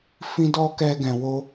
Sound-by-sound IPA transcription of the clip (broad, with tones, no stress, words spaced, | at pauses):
fĩ˦dɔ˦ kɛ˦ɡɛ̃˧wo˦